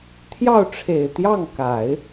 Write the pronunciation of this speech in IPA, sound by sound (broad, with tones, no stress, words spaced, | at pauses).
t̪ʰjɑ˥˩ʊ̯ʈ͡ʂʰe˨˩ɪ̯t̪jɑ˥˩ŋ ka˨˩˦ɪ̯